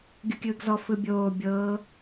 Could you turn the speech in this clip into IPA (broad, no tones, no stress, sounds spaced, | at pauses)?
ɡʲ u kʲ ɯː ɡ z ɔ f ɯ bʲ oː bʲ ɤː